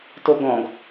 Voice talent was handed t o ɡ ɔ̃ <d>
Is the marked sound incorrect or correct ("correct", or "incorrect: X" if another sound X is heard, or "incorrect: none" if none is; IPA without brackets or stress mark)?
incorrect: ɡ